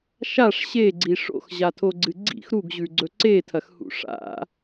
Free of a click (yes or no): no